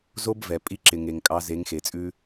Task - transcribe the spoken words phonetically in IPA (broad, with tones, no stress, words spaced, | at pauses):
zo˦bvɛ˨ pʼi˧ǁɪ˨ŋe˨ŋ kʼɑ˧ze˨˦ŋxe˨t͡sʼʉ˦